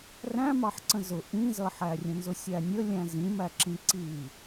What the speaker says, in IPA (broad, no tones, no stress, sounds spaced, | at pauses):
r æ̃ m ɑ ħ ǀ ə̃ z ʊ ʔ ĩ z ʌ ħ æ rʲ ə̃ n z ʊ sʲ æ nʲ ə lʲ æ̃ z ĩ m æ ǁ ĩ ǀ i